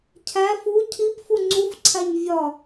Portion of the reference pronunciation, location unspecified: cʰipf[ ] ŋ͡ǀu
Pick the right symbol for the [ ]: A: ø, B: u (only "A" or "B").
B